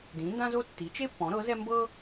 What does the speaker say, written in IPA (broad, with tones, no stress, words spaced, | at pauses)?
dĩ˩˥ndã˥zo˥ tːi˩˥t͡ʃe˥pːɔ̃˩˥ ɾɤ˩˥zɛ˥ mbɤ˥